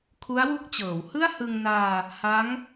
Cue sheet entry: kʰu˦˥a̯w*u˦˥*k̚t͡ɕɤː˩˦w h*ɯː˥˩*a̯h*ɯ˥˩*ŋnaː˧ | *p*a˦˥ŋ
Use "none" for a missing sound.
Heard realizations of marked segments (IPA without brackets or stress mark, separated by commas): u˦˥, ɯ˥˩, ɯ˧, h